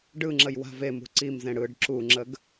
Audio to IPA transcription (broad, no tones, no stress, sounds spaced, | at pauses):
ɖ ɯ ŋ͡ǁ ə j w a̤ v e m ṳ ǀ i m z ẽ ɽ ɯ ɖ ǁ u ŋ͡ǁ ə ɡ